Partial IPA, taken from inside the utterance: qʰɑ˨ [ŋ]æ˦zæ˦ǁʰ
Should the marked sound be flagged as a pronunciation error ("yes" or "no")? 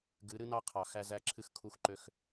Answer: yes